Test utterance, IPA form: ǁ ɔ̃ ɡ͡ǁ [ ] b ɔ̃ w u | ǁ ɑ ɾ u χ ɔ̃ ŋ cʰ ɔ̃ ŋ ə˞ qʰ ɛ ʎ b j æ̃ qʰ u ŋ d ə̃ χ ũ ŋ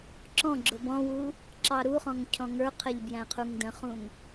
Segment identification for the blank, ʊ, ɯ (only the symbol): ʊ